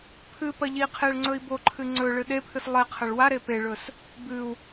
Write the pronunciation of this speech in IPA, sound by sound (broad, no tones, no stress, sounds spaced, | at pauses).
pʰ ɨ p ɐ ʎ i qʰ e ɭ ŋ͡ǀ ɵ i̯ b o ǃʰ ɨ ŋ͡ǀ ɵ ɭ ɨ ɗ e pʰ ɨ s lˠ e qʰ ɐ ɭ w a ɾ e p e ɭ ɵ s | b ɨ u̯